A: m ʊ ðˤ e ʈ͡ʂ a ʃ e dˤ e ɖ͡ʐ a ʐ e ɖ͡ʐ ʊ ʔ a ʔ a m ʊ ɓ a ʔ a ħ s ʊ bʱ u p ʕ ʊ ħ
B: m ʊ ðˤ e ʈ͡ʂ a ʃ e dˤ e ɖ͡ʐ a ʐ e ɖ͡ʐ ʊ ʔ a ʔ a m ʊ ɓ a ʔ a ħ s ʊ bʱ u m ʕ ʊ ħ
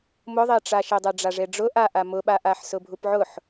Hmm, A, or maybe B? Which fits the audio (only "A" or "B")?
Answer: A